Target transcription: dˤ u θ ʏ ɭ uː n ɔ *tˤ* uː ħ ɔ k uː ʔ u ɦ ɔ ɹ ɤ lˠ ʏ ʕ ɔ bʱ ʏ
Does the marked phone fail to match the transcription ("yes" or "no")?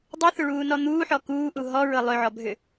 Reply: yes